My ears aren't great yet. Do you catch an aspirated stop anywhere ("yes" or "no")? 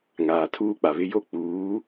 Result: yes